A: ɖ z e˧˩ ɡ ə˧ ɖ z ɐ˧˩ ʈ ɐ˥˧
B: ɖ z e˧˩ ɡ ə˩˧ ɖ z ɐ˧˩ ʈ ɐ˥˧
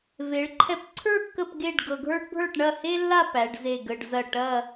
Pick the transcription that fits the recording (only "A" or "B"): A